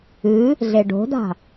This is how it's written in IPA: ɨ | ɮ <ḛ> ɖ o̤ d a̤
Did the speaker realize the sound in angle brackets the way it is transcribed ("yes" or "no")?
no